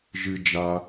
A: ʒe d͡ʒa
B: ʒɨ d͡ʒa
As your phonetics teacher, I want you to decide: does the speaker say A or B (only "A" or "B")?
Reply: B